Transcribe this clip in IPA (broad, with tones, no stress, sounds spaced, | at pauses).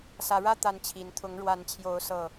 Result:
s ä˨˦ ɻ ä˦ t̪ a˦ n t͡ɕʰ i˨˦ n t̪ʰ ʊ˨˦ ŋ ɻ w a˨˦ n t͡ɕʰ j o˨˦ ʊ̯ s ɤ˨˩